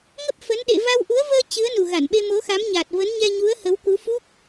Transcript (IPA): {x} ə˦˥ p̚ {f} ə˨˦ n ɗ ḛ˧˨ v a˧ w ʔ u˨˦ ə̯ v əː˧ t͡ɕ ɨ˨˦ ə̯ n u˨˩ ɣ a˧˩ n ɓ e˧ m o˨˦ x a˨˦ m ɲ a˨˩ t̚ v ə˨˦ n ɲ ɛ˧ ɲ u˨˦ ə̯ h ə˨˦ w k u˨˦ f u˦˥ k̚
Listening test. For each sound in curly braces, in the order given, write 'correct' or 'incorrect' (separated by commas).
incorrect, correct